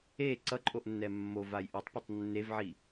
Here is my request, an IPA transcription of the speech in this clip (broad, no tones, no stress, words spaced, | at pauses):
e ǀʌǃʼoʔnːɛ mːovaj ʔʌtˤpʌtˤ nːevʕi